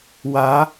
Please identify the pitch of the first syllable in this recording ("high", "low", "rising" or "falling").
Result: rising